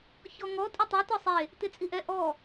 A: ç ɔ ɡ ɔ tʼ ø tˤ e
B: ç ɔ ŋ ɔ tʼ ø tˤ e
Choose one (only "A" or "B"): B